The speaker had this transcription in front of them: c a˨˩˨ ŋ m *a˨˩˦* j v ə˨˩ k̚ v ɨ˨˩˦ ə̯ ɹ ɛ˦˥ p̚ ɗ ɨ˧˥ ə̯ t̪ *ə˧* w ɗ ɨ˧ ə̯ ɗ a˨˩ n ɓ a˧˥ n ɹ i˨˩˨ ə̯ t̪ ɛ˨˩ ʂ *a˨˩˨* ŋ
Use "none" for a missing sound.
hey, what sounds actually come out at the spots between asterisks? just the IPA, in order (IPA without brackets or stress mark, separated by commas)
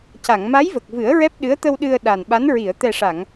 a˧˥, ə˧, a˨˩˨